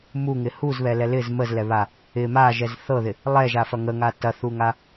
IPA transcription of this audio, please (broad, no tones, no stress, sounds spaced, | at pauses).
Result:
m u ŋ ɪ h u z β ɛ l ɛ l ɪ z m ə z l ɛ β a | ɪ m a ʒ ɛ z θ ɤ ð ɪ | lˠ ɛ ʒ a f ɐ ŋ ə ŋ a t ɐ θ u ŋ a